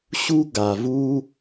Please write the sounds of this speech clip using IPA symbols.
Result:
ɕ u˦ ɡ a˨ v u˦

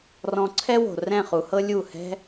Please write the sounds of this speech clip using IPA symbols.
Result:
r ɔ̃˧ ǀʰ ɛ˦ w o̤˨ r ɛ̃˦˨ χ u˧ h ɤ˦ lʲ u˦˨ h ɛ̤˦

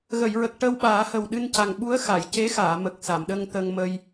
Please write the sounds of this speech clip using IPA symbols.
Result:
ɣ ə˨˩˨ j ɹ ə˨˩ k̚ ʈ ə˧ w ɓ aː˨˩˦ h ə˨˩ w ɗ ɨ˧ n c a˨˩ ŋ ɓ u˧˥ ə̯ x a˨˩˨ j c e˧˥ x aː˨˩˨ m ə˨˩ k̚ s a˨˩˨ m ɗ ə˧ ŋ t̪ ə˧ ŋ m ə˧ j

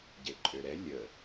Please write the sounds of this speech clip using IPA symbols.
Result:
ɟ e ǃʼ ø ɾ ɛ lʲ ə

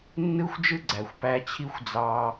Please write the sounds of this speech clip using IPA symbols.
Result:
nː ɯ˥ xʷ d͡ʒ ɯ˥ ɡ͡ǀ æ˩ xʷ p æ˧ t͡ɕʰ i˥ xʷ d͡z ɑ˧

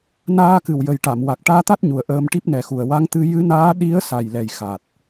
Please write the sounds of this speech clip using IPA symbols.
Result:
n aː˧ k ɨ˨˩ w j ə˨˩ j ʈ a˨˩˨ m w a˨˩ k̚ ʈ aː˧ t̪ a˦˥ t̚ ɲ u˨˩ ə̯ ʔ əː˧ m ʈ i˦˥ p̚ n ɛ˨˩ x u˨˩ ə̯ w a˧˥ ŋ t̪ ɨ˧ j ɨ˧˥ n aː˧˥ ɗ i˧˥ ə̯ s a˨˩ j l ɛ˨˩ j x a˨˩ t̚

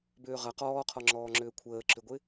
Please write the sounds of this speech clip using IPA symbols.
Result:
b ʏː ʁ ɐ q ɔː qʰ ɔ ŋ͡ǁ ɔː ŋ͡ǁ ʏː kʷʰ əː ǁ ʏ ɡʷ ɪ

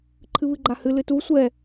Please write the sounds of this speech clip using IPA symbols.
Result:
ǃʰ ɨ β ɨ ɡ͡ǃ a h ɨ l ɨ t u sʷ ɛ

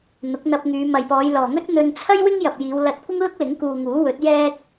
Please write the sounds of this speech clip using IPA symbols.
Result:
n̪ ʊ˨˥ k̚ n̪ ɐ˧ p̚ ŋ yː˨˧ m ɐ˨ j p ɔː˨˧ j l ɔː˨ ŋ ɵ˥ t̚ n̪ ɵ˧ n t͡sʰ ɐ˥ j w ɪ˥ ŋ j ɐ˨ p̚ j iː˨˧ w l ɐ˧ t̚ kʷ ɪ˥ ŋ l ʊ˥ k̚ l ɪ˨˥ ŋ k uː˨ ŋ uː˨˥ w ɵ˨˥ t̚ j ɛː˧ k̚

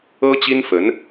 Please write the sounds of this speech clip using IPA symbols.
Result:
ɤ˥ t͡ɕ i˥ n f ə˧˥ n

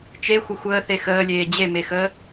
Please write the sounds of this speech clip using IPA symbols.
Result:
t͡ʃ e xʷ ə xʷ əː θ e x əː lʲ eː d͡ʑ e m e x əː

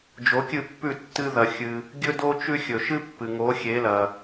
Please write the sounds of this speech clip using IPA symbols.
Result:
d͡ʒ o˩˥ kʲ ɨ˥˩ pː ʉ˥˩ tː ɨ˧ ð ɐ˩ xʲ ɨ˩ | ɡʲ ɵ˥ d o˥ t͡ʃ ʉ˥ xʲ ɵ˩ ʃ ɨ˥ pː ɨ˩ ŋ o˩˥ xʲ e˩˥ l ɐ˩

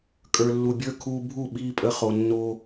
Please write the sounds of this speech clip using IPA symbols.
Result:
kʼ ə˞˨ lː u˨ bʲ ə˞˦ kʰ uː˧ bʱ u˦˨ ɓ iː˧ pʼ ə˧ χ o˨ nː o˧

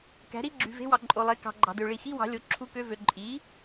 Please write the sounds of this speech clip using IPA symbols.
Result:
k æ̤˩˥ ɾ i˧˥˧ ɡ͡ǁ y˨ v e̤˧˥˧ w ɑ˨ ǃʼ o˨ lˠ e˩˥ k ɑ̤˨ ɡ͡ǃ ɑ̤˨ d ø˨ ɭ i˨ x i˧˥˧ w ɑ̤˩˥ lʲ o˩˥ ǁʰ u˧˥˧ k ø˧˥˧ v ø˨ ǃʼ i˩˥

